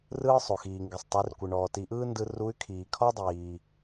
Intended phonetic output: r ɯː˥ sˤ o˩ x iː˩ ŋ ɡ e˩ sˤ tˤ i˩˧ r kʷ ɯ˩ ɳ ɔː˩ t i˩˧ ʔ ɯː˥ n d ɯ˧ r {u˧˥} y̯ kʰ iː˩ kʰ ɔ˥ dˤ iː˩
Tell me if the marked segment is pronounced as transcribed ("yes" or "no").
yes